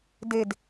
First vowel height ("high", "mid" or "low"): mid